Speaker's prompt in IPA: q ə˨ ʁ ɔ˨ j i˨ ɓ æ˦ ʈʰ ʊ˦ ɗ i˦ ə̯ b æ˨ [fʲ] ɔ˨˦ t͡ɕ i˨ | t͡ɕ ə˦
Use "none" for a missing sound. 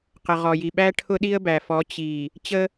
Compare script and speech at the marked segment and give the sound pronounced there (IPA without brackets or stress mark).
f